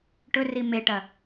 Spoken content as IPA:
ʈ ɵ r i m e ʈ ɐ

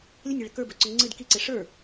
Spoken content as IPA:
lʲ ə nʲ e ɭ ə k ə˞ b ɵ ǀ ɵ ŋ͡ǀ ɨ d k i ǀ e ʂ ə˞

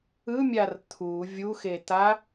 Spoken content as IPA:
ɯ mʲ a r t̪ʰ u vʲ u x e t̪ a

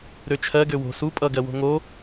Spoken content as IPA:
ɾ ø t͡ʃʰ ɜ ɡ ø w o̤ s u pʼ ʌ ɡ ɜ w o̤ ŋ o

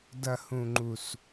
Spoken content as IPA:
d ɐ˨ h ũ˨ ŋ͡ǃ u˨ s

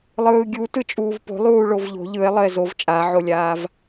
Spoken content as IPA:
lˠ ɯː ɡʲ u t ɯ t͡ʃʼ uː v p o̤ lˠ uː ɭ o v ʎ o̤ ʎ ɯ e̯ lˠ ə e̯ z o v t͡ʃʼ a ʕ o lʲ aː v

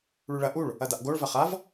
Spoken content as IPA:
ɭ ʉ ɭ ɐ ʔ u ɭ | ɐ d a ʔ ɡ o ɭ v ɐ χ a v

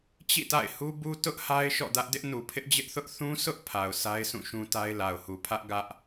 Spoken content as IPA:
t͡ɕ ḭ˦˨ t a̰˦˨ ɪ̯ h u˦ b u˦ t ʊ˦ ʔ h a˦ ɪ̯ ʃ ɔ̰˦˨ d ä˦ ʔ d ɪ˦ ʔ n u˨ pʰ ɪ˦ ʔ d͡ʑ ɪ˦ ʔ θ ʊ˦ ʔ θ ũ˦ s ʊ˦ ʔ pʰ a˨ ʊ̯ sʰ a˦ ɪ̯ s ũ˦˨ ʃ ũ˦ t a˦ ɪ̯ l a˨ ʊ̯ h u˨ pʰ ä˦ ʔ ɡ ä˦ ʔ

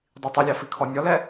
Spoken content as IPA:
dˤ i tˤ u lʲ ɑ f i kʰ ɔ nʲ ɔ l ɛ

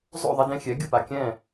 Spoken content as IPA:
zˤ o̰˥˩ ðˤ e˧ d ẽ˧ xʲ ɛ˩˥ ɡʲ ɯ˥˩ p a˩ kʲ ɛ̃˥˩

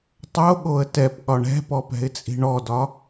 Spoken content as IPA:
tˤ o ɠ o ə̯ t ɛ p ɠ ɒ ɳ ɛ̤ p ɔ p ɛ̤ ɪ̯ t͡sʼ i̤ ɳ ɔ d ɒ

